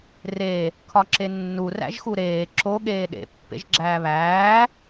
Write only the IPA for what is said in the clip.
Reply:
re | kʰɒǁenːu ræ̰ʒxuɾeː ǁo ɠeːɗḛ pːḛʒɡ͡ǁæːβæː

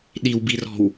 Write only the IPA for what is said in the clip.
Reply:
ɗiwbirɔ̤w

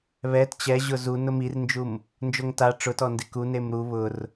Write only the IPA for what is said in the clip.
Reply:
βɛt t͡ɕɛʑʊ zu nʊmirnd͡ʒum | nd͡ʒoŋta ʈ͡ʂʊtɔndɪ ku nemɾu βʊr

